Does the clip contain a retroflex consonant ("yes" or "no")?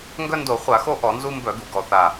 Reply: no